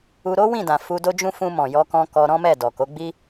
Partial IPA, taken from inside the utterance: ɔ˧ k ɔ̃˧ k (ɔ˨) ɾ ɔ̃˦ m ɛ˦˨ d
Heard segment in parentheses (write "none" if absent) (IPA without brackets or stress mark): ɔ˧